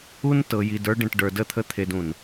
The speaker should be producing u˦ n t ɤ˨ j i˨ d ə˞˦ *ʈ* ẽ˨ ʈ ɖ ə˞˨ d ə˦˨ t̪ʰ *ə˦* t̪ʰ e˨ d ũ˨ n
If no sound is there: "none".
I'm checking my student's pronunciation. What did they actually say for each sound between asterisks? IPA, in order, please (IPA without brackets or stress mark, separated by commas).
ɖ, ə˦